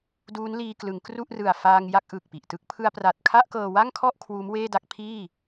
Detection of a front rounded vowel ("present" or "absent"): absent